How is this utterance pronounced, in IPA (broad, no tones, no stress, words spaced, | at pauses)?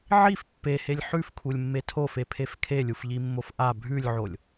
ʕif pːehelʲ ħʉfkʰulʲmːe tʰofepʰef kʰelʲufʎimːof ʔa bʱʉlʲʕolʲ